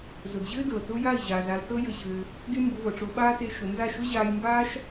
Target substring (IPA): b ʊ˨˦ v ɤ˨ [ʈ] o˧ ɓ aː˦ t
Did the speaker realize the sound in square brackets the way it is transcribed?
no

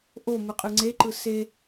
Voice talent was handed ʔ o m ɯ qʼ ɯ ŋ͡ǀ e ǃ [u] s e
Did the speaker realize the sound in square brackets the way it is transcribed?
no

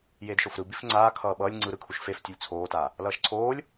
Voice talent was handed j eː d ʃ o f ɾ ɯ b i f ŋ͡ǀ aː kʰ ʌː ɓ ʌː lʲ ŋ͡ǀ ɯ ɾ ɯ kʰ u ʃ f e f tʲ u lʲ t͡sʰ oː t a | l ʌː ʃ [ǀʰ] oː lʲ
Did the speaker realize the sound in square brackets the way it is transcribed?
yes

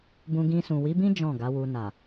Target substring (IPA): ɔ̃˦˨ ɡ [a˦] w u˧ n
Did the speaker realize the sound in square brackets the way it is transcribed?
no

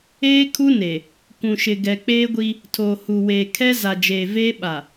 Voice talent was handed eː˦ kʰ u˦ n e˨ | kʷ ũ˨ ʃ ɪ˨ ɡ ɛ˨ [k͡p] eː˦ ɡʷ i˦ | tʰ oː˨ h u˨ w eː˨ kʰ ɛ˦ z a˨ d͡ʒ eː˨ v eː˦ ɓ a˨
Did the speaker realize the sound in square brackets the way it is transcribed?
yes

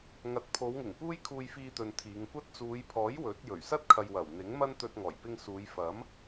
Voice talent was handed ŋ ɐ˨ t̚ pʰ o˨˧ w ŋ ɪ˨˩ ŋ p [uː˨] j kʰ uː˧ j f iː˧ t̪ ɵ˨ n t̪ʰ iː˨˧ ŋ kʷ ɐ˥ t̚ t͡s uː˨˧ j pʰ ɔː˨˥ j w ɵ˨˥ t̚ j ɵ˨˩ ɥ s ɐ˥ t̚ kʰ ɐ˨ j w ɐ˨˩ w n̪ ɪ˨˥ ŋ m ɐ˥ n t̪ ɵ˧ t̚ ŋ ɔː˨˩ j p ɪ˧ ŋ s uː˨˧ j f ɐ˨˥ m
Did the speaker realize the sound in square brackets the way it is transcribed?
no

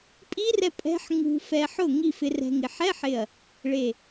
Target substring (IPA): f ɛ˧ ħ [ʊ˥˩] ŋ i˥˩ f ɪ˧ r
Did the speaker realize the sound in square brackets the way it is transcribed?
yes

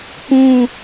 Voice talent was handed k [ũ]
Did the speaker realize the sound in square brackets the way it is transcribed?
yes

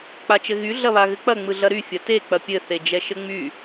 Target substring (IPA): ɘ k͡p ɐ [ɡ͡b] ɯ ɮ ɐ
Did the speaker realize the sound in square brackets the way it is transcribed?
no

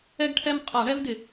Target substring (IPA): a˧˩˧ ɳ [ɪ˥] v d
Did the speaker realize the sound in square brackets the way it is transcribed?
no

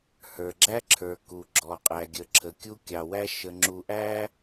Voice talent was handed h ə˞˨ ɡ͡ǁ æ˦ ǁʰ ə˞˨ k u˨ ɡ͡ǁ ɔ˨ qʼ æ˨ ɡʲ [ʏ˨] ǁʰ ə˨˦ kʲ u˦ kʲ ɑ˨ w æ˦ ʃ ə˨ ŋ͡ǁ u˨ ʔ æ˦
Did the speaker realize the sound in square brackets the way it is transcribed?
no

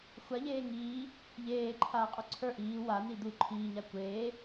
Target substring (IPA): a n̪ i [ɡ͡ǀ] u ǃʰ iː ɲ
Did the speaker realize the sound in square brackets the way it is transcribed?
no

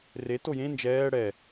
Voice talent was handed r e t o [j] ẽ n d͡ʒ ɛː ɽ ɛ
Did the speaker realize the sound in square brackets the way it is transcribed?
yes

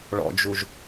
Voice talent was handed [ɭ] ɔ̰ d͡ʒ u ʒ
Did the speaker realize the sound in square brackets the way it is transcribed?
yes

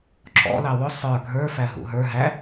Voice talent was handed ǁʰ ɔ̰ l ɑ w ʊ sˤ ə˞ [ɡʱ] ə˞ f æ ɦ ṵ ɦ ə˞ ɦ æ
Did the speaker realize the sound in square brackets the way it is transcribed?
yes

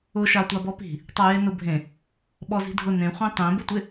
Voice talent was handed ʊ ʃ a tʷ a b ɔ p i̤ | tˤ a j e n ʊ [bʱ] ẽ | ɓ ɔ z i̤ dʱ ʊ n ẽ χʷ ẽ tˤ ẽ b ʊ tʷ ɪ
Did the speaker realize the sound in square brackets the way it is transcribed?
yes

